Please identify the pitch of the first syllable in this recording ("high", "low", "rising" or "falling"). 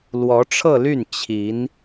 rising